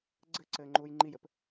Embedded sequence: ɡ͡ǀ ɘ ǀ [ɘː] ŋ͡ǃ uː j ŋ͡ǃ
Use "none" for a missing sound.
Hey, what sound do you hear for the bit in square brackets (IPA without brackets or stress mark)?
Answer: ɘː